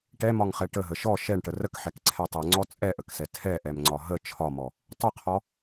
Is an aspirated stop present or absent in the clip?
present